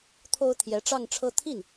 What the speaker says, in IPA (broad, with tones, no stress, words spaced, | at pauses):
t̪ʰo˥ʊ̯t̪ʰjɛ˧˥ ʈ͡ʂɑ˥˧ŋʈ͡ʂʰɤ˥˧ t̪ʰi˥˩n